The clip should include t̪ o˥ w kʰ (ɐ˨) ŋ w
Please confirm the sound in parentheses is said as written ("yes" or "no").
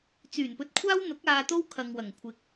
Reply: yes